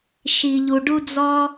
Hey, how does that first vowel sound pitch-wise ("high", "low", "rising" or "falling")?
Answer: low